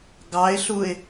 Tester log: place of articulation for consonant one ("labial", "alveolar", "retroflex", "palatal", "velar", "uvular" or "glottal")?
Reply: velar